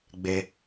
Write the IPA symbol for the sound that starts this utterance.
ɡ͡b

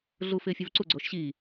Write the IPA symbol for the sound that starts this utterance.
ɮ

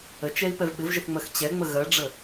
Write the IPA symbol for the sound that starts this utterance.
ə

